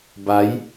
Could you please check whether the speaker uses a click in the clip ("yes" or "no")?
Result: no